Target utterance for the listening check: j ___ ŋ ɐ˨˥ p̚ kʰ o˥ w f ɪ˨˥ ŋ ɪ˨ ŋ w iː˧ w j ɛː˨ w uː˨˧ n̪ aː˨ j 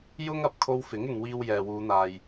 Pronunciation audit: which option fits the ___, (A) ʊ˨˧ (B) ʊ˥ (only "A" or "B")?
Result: B